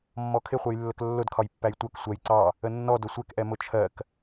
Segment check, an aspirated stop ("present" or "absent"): present